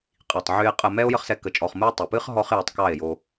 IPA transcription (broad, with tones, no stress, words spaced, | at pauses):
qʼi˨tˤʕy˧e̯ qʼə˧mɛ˦o̯ jə˦χsɛ˧ kə˧t͡ʃʼɔ˧χmɨ˦o̯ tˤə˨pɨ˦χ ɦɔ˦χjo˧tˤ kɑ˦˨e̯jo˧